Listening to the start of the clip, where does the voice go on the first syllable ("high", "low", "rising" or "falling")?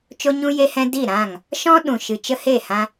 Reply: high